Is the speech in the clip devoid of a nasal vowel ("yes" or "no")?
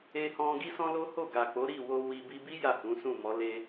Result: no